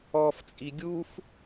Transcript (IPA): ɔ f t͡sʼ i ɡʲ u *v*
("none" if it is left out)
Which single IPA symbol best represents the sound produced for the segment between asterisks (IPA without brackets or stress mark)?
f